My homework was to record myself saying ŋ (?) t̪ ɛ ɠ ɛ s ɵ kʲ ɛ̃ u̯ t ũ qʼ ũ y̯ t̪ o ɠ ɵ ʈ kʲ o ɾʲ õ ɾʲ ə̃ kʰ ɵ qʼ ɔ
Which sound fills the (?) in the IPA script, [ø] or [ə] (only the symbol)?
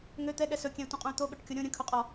ø